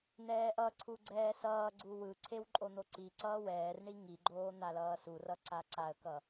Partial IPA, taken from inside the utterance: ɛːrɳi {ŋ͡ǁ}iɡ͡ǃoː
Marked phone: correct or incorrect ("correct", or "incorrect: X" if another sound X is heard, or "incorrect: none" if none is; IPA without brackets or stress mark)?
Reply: incorrect: ŋ